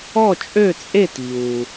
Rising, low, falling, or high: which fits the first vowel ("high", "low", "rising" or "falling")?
falling